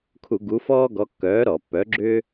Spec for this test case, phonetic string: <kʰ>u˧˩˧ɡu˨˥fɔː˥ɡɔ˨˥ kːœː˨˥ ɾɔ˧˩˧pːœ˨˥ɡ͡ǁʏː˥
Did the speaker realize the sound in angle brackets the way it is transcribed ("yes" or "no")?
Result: yes